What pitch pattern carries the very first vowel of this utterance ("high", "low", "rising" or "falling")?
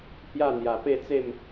falling